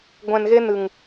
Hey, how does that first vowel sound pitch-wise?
low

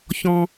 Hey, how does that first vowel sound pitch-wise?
low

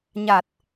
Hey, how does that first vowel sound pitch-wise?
low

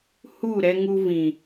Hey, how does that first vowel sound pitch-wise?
falling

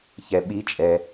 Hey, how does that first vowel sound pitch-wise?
low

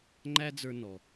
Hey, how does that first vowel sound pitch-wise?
high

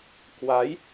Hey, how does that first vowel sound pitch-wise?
rising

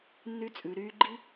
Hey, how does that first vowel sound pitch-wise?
high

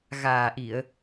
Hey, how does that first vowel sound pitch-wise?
low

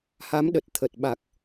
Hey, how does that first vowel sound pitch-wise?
rising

